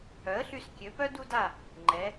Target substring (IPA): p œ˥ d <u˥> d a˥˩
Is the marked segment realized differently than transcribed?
no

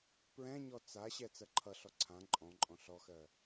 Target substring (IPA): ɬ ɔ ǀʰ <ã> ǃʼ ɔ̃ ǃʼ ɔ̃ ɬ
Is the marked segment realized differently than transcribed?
no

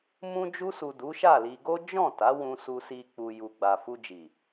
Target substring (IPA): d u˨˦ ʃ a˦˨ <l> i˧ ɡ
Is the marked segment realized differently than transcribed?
no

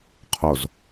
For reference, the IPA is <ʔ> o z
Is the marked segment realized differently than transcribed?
yes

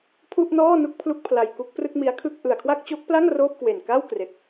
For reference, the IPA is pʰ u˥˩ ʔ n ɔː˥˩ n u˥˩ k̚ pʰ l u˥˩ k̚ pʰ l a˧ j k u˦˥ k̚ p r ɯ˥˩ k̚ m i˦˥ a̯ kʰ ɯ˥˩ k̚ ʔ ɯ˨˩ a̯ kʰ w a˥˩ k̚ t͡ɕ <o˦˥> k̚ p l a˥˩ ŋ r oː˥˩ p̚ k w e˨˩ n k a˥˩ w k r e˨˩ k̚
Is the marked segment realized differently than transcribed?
no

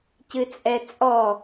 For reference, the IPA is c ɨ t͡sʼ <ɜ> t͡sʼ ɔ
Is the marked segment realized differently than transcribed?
yes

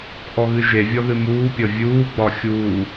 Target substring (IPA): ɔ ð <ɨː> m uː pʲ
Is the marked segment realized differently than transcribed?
yes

